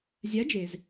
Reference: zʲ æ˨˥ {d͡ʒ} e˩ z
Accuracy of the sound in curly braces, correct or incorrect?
correct